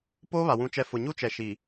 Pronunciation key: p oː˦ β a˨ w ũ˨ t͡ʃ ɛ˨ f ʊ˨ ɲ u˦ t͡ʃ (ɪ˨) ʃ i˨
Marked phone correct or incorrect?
incorrect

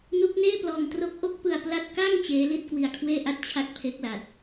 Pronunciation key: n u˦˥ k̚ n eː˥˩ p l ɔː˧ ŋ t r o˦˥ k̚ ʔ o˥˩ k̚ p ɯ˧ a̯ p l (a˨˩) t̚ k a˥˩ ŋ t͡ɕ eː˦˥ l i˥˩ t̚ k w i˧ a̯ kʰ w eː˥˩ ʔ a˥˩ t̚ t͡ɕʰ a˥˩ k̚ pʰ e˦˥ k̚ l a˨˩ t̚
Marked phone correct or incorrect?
incorrect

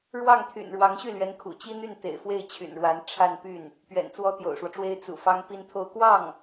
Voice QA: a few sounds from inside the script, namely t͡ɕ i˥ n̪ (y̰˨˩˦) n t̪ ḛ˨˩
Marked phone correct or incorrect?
incorrect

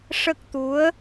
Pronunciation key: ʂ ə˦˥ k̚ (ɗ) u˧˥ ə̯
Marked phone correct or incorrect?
incorrect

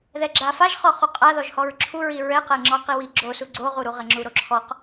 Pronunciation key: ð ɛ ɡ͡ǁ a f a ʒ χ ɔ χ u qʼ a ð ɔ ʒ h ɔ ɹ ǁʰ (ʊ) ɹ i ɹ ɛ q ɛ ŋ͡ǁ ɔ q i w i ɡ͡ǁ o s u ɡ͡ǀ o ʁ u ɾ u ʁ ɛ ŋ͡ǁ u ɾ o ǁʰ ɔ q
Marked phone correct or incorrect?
incorrect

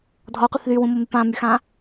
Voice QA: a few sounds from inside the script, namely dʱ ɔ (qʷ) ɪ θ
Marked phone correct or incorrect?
correct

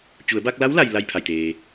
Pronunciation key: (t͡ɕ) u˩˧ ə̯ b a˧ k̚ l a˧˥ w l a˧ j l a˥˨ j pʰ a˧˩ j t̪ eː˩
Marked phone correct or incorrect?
correct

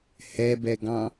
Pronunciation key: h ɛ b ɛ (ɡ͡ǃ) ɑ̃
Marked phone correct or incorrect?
incorrect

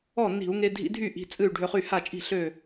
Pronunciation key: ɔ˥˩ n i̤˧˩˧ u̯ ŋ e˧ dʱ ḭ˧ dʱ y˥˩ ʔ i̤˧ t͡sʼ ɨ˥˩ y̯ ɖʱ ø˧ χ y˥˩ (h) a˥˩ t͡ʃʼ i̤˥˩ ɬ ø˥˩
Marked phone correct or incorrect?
correct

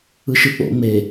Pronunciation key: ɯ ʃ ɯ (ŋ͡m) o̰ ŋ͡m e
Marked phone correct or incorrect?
incorrect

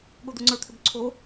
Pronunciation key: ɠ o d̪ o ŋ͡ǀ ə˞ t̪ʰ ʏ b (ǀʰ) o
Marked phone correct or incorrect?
correct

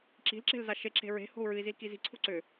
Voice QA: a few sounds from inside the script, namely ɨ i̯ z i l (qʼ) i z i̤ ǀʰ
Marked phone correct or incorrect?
incorrect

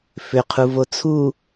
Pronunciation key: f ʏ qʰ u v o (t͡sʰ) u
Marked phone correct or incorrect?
correct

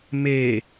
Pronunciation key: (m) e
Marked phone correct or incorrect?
correct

